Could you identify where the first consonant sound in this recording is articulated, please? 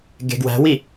velar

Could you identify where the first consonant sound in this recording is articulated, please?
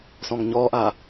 alveolar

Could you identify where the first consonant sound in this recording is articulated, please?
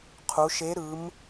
uvular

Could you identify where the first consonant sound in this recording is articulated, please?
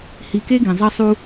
glottal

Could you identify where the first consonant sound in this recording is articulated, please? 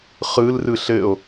uvular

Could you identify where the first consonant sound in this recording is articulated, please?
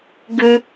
velar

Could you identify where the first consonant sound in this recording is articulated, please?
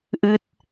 glottal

